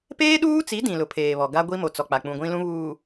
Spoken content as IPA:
p eː˦ ɗ uː˦ t͡s i˨˦ d ĩ˨ l ʊ˨˦ pʰ eː˨ β ɔ˨ ɡ a˦ ɡʷ i˦ m o˨ t͡s ɔ˨ k͡p a˨ k͡p ũ˨ ɡʷ ĩ˦ l ũ˦ β uː˨

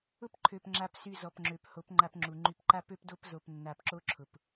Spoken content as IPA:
ʊ˦ p ǃʰ ø˨ p ŋ͡ǁ a˨ p s y˨ z ɔ˨ p ŋ͡ǁ ø˨ p h o˨˦ p ŋ͡ǃ a˧ p ŋ͡ǁ u˨ ŋ͡ǃ y˧ p ǃ a˦ p ø˦ p d o˦ p z o˧ p nː a˧ p ǁ o˦ ǁʰ ʊ˨ p

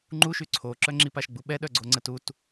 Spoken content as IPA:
ŋ͡ǃ u ʃ y ǀʰ o ǁ œ ŋ͡ǁ i p a ʃ ɡ͡b u ɓ ɛ ɗ œ ɡ͡ǀ o ŋ͡ǀ ə t u t

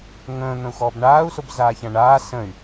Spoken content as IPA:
ŋ ə̃ː n̪ ə̃ u̯ x ɔː b ɳ aː u̯ s o b z aː ç ã ɳ aː s ə̃ y̯

